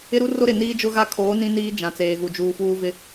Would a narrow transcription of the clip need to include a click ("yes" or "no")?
no